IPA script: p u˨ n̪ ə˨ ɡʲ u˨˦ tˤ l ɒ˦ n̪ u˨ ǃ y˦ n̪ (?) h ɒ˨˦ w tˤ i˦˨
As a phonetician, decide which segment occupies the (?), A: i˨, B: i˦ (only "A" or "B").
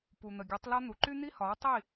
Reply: B